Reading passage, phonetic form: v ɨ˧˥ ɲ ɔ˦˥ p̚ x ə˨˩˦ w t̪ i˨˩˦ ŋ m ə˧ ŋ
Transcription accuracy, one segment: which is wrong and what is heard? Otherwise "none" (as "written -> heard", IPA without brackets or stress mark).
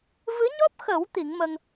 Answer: none